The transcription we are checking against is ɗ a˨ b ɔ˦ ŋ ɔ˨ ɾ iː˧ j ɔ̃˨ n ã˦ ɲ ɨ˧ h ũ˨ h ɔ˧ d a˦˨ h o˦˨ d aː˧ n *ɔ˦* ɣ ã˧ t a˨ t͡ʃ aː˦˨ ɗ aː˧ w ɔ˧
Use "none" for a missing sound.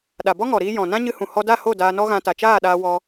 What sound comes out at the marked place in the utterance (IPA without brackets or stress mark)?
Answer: ɔ˦